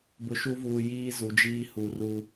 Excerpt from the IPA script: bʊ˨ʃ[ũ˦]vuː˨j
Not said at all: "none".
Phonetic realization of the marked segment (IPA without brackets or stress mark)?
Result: u˦